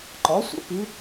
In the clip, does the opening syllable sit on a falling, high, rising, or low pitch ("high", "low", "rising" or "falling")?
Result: rising